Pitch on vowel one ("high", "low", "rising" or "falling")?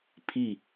falling